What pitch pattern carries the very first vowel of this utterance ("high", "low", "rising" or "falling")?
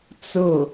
falling